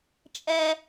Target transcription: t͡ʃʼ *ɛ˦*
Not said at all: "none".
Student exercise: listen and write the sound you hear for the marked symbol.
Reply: ɛ˦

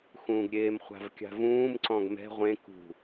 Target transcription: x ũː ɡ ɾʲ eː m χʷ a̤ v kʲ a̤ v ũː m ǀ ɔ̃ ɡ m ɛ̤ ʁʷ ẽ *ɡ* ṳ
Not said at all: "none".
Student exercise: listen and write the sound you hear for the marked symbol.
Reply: k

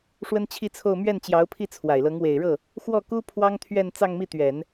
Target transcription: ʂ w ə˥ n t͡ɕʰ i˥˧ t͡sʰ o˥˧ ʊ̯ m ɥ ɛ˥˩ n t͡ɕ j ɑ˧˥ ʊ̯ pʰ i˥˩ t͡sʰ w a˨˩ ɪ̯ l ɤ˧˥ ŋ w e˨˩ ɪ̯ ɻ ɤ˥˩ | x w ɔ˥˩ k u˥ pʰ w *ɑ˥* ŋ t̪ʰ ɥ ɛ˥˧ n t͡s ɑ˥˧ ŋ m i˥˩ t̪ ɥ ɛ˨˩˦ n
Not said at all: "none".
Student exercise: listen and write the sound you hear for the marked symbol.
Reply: ɑ˥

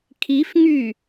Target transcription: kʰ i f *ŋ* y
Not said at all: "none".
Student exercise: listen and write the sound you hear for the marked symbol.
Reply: ŋ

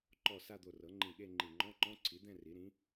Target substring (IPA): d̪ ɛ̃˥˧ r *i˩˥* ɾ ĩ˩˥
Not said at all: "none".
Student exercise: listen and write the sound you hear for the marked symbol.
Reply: i˩˥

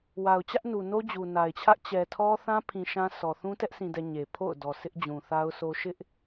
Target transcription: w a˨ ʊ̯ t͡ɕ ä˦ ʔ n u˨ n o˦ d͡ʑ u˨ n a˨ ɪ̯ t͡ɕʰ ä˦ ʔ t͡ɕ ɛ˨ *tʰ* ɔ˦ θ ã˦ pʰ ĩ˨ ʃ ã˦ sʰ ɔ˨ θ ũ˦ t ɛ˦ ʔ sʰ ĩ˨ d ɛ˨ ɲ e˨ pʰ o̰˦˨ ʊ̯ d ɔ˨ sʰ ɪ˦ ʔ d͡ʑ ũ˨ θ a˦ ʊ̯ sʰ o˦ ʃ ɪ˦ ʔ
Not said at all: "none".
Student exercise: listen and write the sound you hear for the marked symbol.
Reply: tʰ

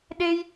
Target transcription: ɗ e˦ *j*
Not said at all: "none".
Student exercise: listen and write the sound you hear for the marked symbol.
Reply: j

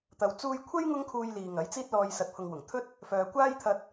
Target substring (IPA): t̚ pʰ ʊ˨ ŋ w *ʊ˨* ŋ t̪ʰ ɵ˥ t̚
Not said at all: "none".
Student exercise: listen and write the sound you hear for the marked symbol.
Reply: ʊ˨˩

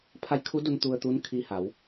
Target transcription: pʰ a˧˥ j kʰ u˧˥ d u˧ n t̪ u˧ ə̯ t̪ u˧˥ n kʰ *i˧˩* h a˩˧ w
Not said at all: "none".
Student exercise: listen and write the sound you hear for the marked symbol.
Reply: i˧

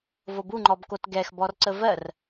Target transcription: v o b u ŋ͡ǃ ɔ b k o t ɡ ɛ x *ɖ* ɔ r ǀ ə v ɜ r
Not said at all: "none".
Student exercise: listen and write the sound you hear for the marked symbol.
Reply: b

